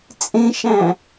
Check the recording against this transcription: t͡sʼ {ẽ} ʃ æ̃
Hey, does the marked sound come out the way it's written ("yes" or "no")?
yes